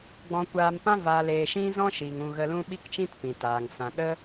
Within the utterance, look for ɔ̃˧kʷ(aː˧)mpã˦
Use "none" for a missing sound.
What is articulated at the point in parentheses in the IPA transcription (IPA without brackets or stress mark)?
aː˧